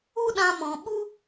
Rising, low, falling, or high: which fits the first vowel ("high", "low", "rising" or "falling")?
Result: high